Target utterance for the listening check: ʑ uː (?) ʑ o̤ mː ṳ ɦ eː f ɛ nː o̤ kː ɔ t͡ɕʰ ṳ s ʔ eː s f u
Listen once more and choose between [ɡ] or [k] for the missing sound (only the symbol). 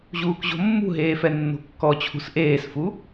k